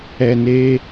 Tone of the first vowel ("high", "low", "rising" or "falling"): low